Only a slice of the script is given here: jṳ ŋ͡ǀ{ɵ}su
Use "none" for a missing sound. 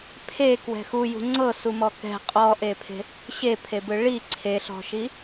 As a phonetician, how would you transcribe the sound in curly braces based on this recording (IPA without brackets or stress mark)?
ɤ